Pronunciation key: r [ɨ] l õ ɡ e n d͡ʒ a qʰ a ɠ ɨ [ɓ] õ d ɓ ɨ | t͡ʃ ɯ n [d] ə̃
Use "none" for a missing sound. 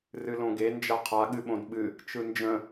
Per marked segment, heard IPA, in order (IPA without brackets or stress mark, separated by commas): ɨ, ɓ, d͡ʒ